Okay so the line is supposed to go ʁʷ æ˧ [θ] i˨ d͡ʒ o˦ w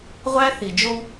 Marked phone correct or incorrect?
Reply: correct